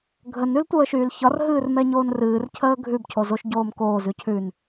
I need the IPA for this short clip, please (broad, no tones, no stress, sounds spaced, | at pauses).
ɡʱ ə n ʉ l tʷ əː ʃ yː l ç ɒ r ɦ ɨː r m ɛ ɲ oː n r ɨː r cʰ əː ɡʱ ʉ b cʰ o z o ʃ ɟ oː m k oː z ʉ cʰ ʉ n